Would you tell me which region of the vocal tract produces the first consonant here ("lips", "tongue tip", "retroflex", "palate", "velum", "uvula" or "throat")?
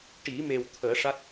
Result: retroflex